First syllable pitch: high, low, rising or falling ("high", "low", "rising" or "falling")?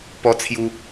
high